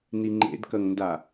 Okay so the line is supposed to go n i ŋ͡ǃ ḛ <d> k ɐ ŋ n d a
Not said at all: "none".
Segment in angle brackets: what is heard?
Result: d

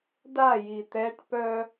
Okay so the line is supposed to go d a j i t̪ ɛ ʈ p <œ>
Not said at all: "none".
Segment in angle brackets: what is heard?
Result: œ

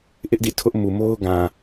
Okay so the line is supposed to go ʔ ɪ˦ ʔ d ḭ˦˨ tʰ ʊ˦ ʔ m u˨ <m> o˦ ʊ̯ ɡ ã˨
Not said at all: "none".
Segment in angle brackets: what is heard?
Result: m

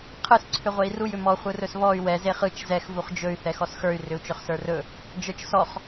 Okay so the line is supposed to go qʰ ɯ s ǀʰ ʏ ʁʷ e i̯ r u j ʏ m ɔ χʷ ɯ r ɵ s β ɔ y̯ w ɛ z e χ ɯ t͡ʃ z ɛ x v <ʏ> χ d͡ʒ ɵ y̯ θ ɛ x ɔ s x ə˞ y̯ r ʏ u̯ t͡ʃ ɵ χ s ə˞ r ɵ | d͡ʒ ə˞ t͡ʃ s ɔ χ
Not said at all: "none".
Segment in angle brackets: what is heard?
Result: u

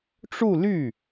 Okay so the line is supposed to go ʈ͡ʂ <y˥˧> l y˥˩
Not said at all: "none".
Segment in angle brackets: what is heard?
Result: u˥˧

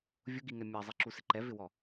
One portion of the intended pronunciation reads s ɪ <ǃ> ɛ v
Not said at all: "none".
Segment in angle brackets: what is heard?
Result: ǃ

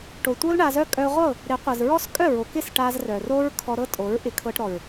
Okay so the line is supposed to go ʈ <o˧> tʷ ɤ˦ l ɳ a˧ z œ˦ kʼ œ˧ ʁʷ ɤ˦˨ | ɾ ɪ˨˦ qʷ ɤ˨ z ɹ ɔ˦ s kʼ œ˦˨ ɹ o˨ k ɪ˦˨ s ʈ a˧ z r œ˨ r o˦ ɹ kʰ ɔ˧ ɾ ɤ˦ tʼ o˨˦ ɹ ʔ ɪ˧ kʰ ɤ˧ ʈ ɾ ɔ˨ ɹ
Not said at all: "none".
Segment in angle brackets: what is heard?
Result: o˨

